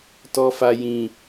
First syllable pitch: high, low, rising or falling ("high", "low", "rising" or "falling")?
low